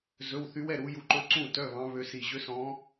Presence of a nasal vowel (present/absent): present